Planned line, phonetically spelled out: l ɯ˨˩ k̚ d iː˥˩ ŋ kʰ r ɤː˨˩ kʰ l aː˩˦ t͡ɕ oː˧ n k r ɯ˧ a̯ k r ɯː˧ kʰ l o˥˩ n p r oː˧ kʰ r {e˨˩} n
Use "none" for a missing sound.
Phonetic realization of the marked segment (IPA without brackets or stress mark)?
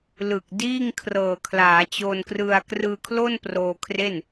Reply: e˥˩